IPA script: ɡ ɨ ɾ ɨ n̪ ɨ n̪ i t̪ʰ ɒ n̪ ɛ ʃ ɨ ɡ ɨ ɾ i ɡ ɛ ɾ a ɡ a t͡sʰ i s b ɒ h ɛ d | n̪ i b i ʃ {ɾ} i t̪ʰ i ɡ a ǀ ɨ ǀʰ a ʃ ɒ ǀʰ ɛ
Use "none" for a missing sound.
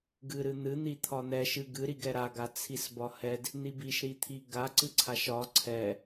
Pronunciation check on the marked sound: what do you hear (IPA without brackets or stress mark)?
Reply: ɾ